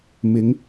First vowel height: high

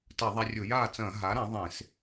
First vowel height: low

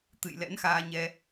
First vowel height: high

